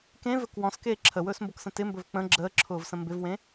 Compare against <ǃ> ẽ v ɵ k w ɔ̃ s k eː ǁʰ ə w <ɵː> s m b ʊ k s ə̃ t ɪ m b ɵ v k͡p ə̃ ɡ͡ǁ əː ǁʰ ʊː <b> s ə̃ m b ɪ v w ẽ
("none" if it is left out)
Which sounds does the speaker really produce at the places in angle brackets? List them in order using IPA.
k, ɵː, v

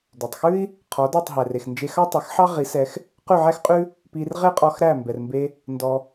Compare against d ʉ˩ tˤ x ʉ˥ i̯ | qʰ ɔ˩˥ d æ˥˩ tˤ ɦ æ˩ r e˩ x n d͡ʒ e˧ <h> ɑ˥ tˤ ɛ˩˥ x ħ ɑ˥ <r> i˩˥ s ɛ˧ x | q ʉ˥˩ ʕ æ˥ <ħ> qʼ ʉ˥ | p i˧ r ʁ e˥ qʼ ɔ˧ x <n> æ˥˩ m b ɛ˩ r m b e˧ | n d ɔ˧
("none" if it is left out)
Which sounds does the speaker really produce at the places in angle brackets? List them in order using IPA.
x, ʁ, x, ɾ

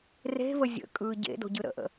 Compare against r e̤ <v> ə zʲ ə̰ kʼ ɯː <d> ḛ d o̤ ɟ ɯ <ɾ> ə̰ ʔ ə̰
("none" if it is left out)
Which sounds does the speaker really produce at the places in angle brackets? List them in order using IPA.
v, ɟ, ɾ

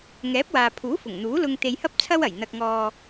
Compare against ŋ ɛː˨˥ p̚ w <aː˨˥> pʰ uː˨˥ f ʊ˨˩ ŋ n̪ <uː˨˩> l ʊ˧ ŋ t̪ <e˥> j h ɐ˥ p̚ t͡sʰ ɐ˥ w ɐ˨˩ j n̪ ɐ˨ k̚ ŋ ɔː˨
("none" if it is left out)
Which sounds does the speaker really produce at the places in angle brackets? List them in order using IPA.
aː˨, uː˨˥, e˧

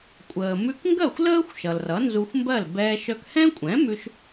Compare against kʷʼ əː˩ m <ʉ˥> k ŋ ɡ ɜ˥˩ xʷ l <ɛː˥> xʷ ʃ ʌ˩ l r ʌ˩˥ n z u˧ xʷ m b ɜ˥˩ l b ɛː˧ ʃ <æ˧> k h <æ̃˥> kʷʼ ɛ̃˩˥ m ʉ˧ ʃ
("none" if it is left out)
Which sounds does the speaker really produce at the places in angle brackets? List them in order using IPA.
ʉ˧, əː˥, œ˧, ɛ̃˥

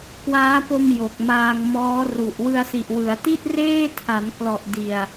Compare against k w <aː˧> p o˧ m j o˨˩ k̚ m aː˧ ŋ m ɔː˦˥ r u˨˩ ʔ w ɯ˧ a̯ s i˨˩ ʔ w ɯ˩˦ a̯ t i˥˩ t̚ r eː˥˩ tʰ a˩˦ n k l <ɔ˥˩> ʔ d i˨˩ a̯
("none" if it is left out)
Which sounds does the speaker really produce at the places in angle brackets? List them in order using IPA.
aː˦˥, ɔ˨˩

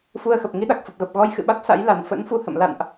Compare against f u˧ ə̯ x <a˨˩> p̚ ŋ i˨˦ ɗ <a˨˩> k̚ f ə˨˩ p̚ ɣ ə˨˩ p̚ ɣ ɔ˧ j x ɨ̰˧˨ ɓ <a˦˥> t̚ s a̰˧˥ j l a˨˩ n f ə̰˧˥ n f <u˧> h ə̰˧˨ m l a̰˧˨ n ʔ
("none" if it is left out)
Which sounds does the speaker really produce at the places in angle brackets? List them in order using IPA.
ə˨˩, a˨˩, a˦˥, u˧

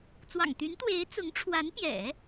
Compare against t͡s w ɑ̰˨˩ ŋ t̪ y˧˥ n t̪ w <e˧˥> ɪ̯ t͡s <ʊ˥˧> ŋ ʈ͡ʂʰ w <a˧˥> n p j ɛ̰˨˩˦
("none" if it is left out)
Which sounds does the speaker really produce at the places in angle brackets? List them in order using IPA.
e˧˥, ʊ˧˥, a˧˥

